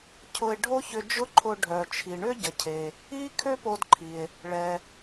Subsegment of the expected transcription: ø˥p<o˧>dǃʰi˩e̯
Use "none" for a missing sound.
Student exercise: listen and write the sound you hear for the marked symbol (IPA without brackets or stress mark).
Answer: o˧